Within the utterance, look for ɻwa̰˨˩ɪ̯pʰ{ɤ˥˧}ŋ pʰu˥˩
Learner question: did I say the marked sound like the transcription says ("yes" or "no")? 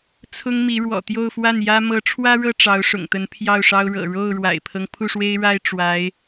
no